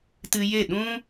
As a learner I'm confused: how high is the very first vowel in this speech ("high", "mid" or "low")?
high